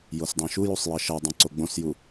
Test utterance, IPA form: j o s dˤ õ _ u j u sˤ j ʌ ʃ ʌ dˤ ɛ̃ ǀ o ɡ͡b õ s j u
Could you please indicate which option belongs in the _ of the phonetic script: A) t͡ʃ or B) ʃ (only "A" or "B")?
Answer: B